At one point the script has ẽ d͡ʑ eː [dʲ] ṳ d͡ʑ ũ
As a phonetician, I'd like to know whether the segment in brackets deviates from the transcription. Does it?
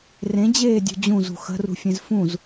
no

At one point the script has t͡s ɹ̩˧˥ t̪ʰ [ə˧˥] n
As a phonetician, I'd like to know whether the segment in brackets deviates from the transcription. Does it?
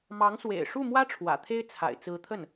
yes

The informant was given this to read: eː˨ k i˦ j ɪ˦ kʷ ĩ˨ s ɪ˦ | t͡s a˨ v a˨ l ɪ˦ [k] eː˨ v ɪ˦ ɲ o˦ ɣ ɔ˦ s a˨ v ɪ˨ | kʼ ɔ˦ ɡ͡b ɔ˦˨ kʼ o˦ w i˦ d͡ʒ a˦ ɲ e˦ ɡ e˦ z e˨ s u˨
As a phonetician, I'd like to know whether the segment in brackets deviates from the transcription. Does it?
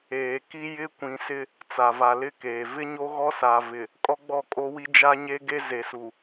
no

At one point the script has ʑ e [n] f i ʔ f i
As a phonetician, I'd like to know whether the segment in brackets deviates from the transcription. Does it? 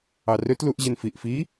no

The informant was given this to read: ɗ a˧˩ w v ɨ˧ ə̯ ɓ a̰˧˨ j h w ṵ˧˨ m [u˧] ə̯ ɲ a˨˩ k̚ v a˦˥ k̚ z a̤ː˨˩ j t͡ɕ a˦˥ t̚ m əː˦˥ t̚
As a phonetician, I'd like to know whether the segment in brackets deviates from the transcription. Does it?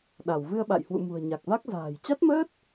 yes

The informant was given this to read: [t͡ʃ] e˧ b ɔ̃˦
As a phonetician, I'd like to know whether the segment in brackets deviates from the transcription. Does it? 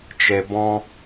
no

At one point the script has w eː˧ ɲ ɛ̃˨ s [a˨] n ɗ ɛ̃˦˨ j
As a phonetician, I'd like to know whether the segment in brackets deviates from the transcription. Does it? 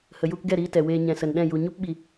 yes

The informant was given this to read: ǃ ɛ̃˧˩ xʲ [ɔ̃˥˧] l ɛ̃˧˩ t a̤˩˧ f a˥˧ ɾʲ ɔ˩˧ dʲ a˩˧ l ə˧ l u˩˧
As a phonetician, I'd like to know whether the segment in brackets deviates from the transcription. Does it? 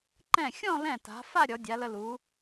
no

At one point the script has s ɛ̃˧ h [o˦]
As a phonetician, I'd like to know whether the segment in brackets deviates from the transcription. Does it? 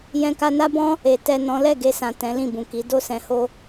no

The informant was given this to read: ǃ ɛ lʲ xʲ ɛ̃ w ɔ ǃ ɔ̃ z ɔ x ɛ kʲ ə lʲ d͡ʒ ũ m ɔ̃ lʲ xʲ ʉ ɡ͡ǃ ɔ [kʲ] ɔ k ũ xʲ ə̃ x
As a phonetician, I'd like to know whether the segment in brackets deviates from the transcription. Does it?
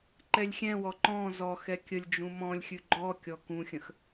no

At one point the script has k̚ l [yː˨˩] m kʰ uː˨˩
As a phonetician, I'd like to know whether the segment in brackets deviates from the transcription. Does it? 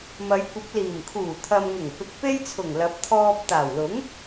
yes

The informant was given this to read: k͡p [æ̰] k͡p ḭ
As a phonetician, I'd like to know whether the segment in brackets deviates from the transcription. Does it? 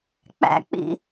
no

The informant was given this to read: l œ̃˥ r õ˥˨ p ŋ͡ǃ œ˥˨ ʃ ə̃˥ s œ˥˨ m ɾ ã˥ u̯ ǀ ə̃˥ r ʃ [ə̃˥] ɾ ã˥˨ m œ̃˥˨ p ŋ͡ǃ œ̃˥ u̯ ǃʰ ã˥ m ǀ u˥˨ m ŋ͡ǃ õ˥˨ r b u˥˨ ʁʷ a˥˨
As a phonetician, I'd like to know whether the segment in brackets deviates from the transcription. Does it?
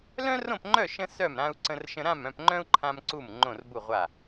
no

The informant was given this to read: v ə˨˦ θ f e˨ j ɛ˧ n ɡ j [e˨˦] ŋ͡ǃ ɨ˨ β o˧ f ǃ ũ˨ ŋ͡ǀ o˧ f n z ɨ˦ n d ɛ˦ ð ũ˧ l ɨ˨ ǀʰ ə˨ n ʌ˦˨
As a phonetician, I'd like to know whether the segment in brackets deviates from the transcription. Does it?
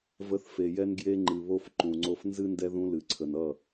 yes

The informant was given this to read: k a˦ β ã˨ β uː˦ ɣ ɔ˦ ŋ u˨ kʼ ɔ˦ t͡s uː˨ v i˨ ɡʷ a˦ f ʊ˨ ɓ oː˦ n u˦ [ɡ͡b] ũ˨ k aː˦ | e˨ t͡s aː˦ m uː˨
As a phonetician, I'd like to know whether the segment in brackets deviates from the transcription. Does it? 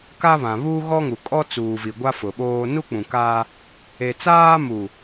yes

